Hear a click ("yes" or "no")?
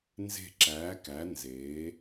yes